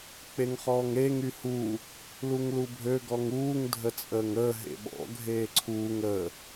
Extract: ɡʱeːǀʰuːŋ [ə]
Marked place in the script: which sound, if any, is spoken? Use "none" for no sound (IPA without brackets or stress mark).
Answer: ə